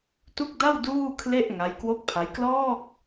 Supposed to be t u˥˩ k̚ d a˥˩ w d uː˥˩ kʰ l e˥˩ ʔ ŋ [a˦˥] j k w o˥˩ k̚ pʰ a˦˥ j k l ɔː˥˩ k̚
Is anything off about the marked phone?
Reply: no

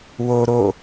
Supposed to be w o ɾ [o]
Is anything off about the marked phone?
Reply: no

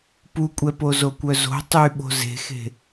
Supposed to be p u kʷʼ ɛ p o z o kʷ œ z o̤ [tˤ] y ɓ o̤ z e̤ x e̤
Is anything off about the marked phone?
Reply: no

